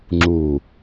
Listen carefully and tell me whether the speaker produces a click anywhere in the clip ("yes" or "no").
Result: yes